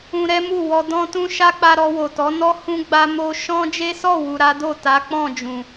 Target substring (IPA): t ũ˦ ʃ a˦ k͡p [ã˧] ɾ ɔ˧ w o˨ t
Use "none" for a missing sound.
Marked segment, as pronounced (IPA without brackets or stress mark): a˧